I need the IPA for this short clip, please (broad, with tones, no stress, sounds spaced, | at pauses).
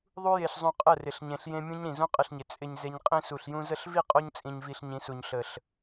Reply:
ðˤ u˧ j e˨ ɬ zˤ ũ˨ qʼ ə˦˨ r ɪ˨ ɬ ɲ ẽ˨ ɬ j ẽ˦ mʲ ũ˦ ɲ ɾ ĩ˨ z ũ˦ qʼ ɪ˧ ɬ ɲ ɪ˨ t͡sʼ ɪ˨ ɲ z e˨ ɲ qʼ ĩ˧ s u˨ ɬ j ũ˧ z ə˦˨ ɬ v i˦˨ qʼ o˧ ɲ t͡sʼ ĩ˨ ɲ v i˨ ɬ ɲ ĩ˨˦ s u˨ ɲ ɬ ə˨ ɬ